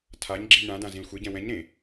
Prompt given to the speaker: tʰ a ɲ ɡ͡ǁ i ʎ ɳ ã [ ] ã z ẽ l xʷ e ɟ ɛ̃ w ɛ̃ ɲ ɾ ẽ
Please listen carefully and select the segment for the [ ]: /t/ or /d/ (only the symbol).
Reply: d